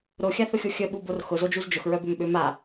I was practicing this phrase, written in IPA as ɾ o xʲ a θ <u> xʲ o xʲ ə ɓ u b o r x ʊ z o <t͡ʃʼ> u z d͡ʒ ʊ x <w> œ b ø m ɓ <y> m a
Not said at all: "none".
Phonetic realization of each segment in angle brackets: ʊ, d͡ʒ, ɹ, ø

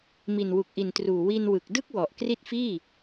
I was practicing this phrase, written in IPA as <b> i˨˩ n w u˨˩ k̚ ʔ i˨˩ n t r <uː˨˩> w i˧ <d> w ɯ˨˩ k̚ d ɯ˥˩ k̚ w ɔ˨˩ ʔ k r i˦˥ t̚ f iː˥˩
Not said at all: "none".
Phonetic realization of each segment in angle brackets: m, uː˨˩, n

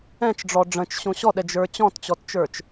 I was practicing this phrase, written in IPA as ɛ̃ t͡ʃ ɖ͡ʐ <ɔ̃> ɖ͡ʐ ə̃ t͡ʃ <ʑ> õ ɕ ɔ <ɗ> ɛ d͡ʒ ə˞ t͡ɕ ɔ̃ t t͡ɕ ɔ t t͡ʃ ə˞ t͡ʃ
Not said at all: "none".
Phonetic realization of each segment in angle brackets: ɔ, ɕ, ɗ

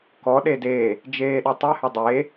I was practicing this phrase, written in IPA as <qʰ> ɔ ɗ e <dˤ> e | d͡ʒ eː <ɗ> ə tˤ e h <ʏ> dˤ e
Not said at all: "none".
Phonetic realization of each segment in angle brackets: k, d, ɗ, ʏ

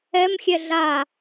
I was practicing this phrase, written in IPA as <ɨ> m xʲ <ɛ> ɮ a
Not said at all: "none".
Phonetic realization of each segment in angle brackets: ɛ, ɛ

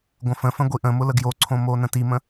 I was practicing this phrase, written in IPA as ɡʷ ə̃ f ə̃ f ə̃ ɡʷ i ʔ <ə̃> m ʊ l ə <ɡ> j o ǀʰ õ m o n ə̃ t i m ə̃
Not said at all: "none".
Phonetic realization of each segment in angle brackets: ə̃, ɡ

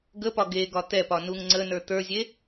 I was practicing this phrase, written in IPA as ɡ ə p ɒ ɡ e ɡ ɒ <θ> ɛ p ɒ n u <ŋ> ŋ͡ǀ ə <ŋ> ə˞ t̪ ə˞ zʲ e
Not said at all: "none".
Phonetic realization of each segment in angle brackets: t̪, ŋ, n

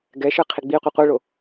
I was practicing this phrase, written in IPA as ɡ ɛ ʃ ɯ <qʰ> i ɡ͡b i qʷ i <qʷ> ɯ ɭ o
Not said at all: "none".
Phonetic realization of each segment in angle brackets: qʰ, qʷ

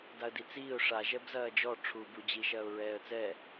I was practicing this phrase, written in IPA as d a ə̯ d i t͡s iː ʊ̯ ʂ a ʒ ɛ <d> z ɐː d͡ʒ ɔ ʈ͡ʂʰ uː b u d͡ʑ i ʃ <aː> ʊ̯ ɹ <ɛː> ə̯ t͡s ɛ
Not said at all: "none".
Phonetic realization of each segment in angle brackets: b, ɐː, ɛː

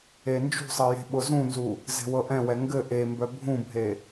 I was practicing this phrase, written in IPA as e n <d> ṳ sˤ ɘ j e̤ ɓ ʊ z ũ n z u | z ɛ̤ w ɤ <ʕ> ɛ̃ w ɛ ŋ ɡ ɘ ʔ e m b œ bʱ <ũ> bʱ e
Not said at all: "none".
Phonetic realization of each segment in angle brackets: d͡ʒ, ʔ, ũ

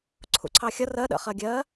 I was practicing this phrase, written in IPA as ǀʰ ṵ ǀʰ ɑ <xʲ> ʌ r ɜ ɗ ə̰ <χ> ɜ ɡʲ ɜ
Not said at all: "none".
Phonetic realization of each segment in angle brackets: xʲ, χ

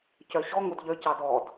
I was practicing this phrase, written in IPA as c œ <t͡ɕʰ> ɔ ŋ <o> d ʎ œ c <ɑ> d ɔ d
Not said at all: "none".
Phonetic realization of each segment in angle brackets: ɕ, o, ɑ

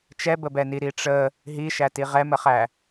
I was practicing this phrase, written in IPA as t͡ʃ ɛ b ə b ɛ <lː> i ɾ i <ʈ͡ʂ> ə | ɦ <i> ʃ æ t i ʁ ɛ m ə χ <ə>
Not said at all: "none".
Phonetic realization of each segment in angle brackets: n, ʈ͡ʂ, i, æ

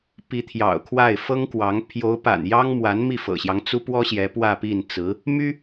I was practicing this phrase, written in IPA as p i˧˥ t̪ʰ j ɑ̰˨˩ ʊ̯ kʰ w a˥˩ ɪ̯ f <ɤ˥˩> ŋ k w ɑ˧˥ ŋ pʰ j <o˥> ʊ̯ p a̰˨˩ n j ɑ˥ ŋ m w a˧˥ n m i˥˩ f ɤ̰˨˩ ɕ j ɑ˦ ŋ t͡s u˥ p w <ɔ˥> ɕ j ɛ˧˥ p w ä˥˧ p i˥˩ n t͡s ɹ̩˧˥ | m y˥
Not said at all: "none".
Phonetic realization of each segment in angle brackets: ɤ˥, o˧˥, ɔ˥

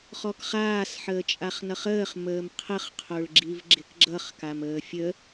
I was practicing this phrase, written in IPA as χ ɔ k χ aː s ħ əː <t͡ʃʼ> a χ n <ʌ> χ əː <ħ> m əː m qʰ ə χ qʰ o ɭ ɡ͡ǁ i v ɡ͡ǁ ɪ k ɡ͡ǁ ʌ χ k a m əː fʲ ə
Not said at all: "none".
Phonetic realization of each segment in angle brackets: t͡ʃʼ, ʌ, χ

